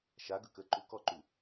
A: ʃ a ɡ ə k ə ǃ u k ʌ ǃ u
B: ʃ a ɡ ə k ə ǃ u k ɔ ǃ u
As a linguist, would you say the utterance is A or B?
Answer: B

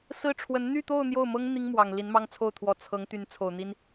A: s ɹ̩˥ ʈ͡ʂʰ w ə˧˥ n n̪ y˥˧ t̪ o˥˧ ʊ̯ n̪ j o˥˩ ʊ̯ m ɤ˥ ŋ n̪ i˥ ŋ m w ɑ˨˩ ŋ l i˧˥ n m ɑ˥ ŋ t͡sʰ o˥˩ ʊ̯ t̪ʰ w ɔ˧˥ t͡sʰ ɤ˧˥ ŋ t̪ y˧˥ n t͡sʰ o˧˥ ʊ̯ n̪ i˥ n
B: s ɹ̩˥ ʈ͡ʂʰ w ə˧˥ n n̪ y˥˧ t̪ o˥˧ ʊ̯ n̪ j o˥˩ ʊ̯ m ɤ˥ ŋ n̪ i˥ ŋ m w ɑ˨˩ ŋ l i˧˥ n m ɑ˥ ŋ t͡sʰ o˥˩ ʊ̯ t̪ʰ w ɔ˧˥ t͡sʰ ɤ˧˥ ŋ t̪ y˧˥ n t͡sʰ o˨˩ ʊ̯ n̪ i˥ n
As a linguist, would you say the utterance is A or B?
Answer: B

